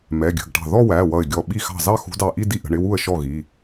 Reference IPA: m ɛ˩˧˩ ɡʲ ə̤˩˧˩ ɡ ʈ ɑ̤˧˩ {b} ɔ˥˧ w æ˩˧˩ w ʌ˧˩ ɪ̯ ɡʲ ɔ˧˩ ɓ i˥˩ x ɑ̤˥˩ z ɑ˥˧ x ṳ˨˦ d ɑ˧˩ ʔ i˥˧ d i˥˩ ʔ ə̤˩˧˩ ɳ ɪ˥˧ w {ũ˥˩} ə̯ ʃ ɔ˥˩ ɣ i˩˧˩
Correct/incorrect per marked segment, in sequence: incorrect, incorrect

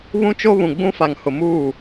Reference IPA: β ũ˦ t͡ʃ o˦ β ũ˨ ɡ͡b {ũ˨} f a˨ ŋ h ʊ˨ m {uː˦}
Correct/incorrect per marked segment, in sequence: incorrect, incorrect

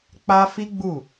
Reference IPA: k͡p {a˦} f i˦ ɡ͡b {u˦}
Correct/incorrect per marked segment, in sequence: correct, incorrect

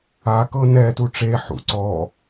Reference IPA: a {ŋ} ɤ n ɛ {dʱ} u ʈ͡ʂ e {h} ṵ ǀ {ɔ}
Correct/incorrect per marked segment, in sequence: incorrect, incorrect, incorrect, correct

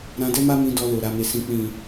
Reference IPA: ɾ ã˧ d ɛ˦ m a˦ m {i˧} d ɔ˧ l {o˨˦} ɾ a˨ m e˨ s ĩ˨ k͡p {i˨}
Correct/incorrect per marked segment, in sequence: incorrect, incorrect, incorrect

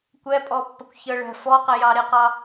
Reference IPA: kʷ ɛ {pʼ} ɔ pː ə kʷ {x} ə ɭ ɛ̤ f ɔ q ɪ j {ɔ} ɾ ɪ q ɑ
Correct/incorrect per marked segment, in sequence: correct, incorrect, incorrect

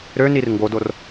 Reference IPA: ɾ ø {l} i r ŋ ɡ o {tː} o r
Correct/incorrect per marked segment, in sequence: incorrect, incorrect

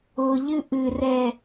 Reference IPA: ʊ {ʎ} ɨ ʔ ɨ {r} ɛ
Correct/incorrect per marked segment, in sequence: correct, correct

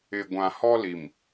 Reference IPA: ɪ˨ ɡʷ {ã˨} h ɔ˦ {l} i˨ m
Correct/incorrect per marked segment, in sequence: correct, correct

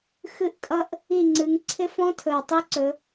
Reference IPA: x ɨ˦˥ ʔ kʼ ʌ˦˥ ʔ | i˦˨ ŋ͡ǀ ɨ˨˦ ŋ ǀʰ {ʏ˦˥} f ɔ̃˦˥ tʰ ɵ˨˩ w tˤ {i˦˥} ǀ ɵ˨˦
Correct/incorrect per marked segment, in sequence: incorrect, correct

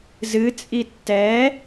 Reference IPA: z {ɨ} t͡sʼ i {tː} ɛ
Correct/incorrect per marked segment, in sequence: correct, correct

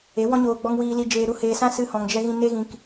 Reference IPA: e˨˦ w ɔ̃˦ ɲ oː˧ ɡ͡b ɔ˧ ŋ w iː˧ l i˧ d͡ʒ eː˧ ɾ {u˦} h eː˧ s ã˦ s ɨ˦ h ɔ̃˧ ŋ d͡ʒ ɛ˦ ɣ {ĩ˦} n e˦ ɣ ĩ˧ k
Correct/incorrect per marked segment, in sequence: correct, correct

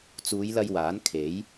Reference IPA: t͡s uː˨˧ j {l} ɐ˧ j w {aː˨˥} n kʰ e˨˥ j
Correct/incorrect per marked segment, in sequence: correct, correct

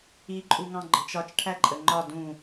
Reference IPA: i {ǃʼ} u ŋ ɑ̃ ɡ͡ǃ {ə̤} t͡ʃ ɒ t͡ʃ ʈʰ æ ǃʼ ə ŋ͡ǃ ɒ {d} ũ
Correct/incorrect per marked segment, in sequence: correct, correct, correct

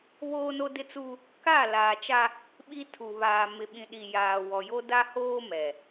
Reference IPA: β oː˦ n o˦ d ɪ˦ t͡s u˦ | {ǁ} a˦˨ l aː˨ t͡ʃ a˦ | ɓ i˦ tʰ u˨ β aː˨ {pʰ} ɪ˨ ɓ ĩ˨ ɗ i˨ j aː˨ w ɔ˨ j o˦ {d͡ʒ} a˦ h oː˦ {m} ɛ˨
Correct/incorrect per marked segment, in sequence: incorrect, incorrect, incorrect, correct

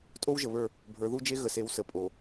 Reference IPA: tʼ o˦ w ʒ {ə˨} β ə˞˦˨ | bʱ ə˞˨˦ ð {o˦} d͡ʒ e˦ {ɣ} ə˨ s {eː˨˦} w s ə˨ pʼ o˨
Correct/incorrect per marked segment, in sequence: correct, incorrect, correct, incorrect

